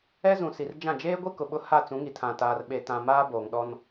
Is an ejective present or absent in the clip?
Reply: absent